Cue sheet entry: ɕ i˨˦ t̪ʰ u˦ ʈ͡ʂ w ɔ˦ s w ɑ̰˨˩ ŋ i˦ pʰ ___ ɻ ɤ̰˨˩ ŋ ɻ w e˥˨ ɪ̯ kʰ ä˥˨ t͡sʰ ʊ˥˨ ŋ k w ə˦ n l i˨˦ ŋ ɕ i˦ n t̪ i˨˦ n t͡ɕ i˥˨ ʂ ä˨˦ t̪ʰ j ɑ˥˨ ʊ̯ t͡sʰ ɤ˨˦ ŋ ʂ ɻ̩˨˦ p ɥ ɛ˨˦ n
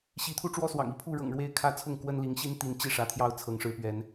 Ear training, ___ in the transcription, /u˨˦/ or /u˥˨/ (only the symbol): u˥˨